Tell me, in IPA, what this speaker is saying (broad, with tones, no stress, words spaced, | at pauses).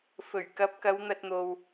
fɵ˨˩ɥ kɐ˨˥p̚kɐ˨˧wn̪ɐ˧t̚n̪o˨w